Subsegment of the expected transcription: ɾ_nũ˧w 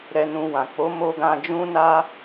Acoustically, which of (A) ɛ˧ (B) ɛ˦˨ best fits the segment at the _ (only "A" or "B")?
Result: A